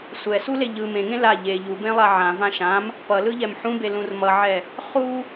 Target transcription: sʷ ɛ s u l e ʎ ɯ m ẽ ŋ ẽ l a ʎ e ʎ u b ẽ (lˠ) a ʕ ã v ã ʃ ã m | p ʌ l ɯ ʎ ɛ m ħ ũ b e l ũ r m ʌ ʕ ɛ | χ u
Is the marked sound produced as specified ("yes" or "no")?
yes